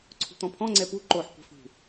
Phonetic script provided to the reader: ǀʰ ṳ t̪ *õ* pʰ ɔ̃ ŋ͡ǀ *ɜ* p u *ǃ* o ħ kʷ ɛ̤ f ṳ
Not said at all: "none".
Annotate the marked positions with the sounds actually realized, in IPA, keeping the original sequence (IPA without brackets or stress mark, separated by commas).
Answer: ɔ̃, ɛ, ǃ